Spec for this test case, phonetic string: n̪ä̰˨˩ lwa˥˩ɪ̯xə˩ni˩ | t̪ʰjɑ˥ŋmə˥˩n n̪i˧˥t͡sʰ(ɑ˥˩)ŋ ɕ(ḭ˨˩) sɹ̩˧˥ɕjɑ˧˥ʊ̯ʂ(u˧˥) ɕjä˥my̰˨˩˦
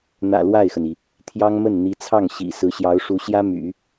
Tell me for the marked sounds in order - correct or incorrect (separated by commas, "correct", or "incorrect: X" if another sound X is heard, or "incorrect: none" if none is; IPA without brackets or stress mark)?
correct, correct, correct